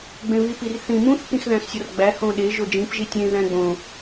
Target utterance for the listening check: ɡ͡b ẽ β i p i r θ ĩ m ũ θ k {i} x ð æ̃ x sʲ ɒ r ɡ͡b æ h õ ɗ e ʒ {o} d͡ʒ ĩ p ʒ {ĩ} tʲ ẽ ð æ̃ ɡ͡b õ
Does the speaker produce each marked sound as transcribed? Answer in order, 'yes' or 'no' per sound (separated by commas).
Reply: no, yes, no